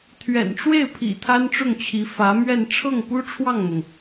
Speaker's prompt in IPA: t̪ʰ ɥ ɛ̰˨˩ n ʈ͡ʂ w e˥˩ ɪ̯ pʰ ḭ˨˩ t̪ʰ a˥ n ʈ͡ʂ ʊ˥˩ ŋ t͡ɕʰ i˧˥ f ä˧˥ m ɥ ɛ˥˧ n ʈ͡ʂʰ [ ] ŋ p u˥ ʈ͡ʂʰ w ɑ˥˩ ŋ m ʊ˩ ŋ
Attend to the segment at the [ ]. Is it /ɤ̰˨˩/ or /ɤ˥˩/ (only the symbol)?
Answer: ɤ˥˩